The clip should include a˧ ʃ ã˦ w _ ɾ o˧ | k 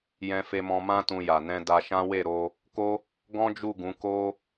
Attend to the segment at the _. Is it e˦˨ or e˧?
e˦˨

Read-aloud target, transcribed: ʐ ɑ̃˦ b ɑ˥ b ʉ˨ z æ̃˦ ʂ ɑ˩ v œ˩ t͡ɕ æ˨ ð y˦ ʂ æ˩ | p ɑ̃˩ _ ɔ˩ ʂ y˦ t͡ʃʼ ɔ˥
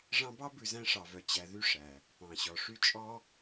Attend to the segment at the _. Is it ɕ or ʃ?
ɕ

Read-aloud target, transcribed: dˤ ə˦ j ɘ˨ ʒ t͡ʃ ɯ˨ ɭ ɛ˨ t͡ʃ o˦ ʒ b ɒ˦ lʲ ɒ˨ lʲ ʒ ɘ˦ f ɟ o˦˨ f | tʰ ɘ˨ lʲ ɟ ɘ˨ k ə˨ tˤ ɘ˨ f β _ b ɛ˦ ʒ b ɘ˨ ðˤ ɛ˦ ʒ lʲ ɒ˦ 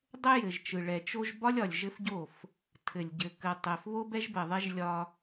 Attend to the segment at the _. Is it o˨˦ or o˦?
o˦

